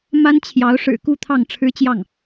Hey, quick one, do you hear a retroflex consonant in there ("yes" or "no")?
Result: yes